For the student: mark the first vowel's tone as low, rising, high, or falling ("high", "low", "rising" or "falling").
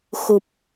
low